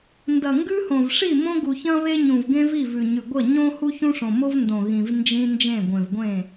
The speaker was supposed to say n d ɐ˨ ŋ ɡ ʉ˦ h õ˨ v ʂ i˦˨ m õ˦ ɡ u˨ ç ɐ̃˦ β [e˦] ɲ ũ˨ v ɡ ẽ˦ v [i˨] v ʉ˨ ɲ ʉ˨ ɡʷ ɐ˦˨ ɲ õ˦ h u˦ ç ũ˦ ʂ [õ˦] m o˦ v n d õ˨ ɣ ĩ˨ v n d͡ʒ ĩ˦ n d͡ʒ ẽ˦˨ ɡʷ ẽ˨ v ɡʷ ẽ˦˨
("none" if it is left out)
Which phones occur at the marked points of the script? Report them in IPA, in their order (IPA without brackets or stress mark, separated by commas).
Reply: e˦, i˦˨, õ˨